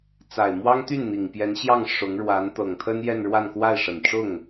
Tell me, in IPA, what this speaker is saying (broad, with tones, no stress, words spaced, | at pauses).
t͡sa˨˩ɪ̯mwɑ˥ŋt̪y˥˩n n̪i˨˩ŋpjɛ˧˥nɕjɑ˥˩ŋ ʂʊ˧˥ŋ ɻwa˧˥n t̪ɤ˨˩ŋt̪ʰə˥n jɛ˥˧nɻwa˥˧nkwa˥˩ɪ̯ʂə˨˩n ʈ͡ʂʊ˥˩ŋ